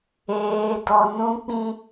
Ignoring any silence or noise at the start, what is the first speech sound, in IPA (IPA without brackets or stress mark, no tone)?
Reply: eː